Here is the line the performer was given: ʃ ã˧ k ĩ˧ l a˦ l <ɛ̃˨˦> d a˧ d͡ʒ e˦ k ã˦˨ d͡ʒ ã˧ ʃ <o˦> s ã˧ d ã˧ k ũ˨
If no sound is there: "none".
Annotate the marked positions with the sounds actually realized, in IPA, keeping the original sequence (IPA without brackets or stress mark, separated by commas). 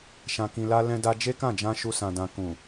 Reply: ɛ̃˦, u˦